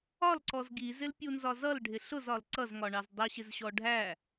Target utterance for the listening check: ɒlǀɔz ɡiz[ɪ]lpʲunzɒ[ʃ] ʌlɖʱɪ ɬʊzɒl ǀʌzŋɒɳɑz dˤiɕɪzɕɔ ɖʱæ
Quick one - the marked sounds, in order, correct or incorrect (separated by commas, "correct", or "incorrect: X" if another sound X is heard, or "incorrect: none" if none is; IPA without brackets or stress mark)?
correct, incorrect: z